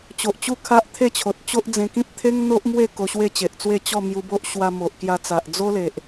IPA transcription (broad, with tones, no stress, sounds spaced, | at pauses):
t͡ɕ o˨ ʔ t͡ɕ u˦ kʰ a˦ ʔ t̪ʰ e˥˧ t͡ɕʰ o˨ t̚ t͡ɕ o˦ ʔ d͡z ẽ˧ k ĩ˦ p̚ t̪ʰ e˦ ŋ n̪ o˦ ʔ m w e˥˧ k o˧ ɕ w e˥˧ t͡ɕ e˨ ʔ t͡s w e˥˧ t͡ɕ ɔ˥˧ m j u˧ b o˦ ʔ ɕ w a˧ m o˨ ʔ k j a˧ t͡s a˨ ʔ d͡z o˦ l e˨ ʔ